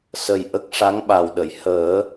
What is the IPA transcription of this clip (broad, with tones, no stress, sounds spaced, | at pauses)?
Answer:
s ə˨˩ j ʔ ə˦˥ k̚ ʂ a˧˥ ŋ ɓ a˨˩ w ɗ ə˨˩˨ j h əː˨˩˦